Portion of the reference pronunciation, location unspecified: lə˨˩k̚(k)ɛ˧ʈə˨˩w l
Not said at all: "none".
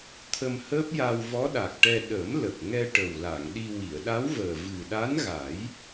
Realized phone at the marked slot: ŋ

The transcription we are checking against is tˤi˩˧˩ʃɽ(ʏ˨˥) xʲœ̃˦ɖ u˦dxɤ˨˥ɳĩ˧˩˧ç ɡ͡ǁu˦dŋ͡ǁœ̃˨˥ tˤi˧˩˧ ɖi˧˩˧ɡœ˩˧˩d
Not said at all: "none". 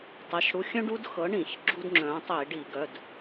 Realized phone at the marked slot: u˨˥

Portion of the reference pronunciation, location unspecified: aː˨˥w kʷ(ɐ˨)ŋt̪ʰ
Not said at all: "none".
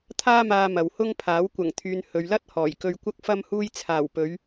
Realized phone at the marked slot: ɐ˨˩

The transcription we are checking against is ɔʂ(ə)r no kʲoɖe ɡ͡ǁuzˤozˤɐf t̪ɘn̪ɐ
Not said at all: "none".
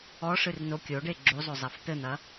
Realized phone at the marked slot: ɨ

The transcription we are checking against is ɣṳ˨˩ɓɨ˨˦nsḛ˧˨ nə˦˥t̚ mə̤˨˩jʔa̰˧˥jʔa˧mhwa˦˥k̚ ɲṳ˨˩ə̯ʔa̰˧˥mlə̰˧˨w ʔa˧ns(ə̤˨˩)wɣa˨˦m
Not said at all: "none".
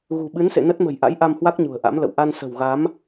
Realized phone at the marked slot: ə̤˨˩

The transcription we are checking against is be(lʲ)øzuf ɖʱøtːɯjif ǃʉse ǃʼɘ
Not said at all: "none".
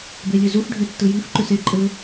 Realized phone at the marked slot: lʲ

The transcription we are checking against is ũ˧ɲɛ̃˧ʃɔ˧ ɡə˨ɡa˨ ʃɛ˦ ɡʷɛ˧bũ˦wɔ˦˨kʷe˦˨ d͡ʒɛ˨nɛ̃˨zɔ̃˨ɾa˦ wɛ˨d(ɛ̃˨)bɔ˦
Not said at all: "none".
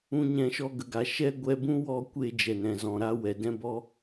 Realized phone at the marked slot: ɛ̃˦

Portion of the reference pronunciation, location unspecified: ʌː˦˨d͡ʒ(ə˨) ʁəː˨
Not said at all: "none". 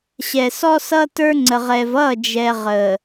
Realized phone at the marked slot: ɛ˨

